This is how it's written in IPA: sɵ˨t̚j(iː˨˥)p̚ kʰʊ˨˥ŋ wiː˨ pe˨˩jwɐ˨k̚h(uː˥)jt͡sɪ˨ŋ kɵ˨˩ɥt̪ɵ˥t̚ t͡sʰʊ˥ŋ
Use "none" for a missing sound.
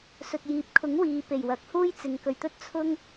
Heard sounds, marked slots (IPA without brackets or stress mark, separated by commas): iː˨, uː˥